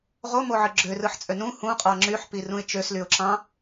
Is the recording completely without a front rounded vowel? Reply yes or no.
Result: no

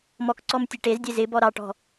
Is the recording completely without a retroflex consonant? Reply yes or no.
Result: no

